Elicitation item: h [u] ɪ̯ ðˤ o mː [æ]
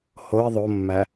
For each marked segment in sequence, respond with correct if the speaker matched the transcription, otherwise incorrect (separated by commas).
incorrect, correct